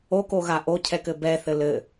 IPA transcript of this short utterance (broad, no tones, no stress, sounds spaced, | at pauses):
o k o ɣ a ʔ o cʰ ɛ k ɘ b ɛ θ ɘ l ɘ